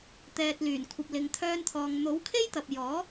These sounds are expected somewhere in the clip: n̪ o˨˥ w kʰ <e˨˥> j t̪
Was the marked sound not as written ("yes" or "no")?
yes